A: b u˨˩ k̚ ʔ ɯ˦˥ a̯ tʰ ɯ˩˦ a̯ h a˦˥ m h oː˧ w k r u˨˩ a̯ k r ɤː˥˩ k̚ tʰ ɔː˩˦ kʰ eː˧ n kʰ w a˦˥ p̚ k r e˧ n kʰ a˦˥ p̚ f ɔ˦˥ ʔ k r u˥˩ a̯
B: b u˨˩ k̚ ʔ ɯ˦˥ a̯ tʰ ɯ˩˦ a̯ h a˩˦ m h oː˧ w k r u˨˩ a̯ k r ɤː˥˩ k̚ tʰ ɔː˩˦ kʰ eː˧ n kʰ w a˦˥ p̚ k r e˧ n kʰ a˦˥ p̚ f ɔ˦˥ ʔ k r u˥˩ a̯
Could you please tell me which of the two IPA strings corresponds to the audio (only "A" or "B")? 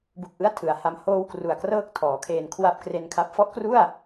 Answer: A